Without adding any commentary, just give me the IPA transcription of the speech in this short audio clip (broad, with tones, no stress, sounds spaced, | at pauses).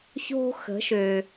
ç o̤˥ x ə̤˩˥ ʃ ø˩